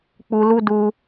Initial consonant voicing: voiceless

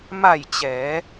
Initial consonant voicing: voiced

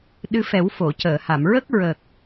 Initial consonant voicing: voiced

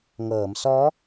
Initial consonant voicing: voiced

